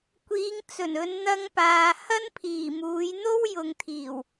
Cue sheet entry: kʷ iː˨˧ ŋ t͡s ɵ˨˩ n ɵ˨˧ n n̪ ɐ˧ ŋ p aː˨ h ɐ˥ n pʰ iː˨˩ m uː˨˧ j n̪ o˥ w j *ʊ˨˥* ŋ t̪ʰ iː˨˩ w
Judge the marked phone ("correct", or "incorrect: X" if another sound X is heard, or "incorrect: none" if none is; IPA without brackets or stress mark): incorrect: ʊ˨